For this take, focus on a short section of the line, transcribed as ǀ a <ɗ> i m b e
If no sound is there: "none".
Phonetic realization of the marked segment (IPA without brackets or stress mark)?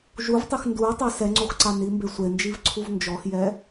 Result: n